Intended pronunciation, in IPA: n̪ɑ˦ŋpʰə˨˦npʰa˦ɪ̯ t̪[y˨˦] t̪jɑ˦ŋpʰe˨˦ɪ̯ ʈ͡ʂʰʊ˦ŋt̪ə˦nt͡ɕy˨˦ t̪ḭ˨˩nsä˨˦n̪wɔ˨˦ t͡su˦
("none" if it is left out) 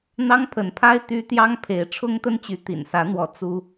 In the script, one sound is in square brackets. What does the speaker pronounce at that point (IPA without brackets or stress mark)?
y˦